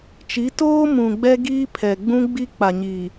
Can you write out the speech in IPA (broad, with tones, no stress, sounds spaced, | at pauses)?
t͡ʃ i˨˦ t oː˦ m ũ˨ ɡ͡b ɛ˦ ɡ iː˦ pʰ ɛ˨ ɡ͡b ũ˦ ɡ͡b i˦ k͡p a˨ ɲ iː˨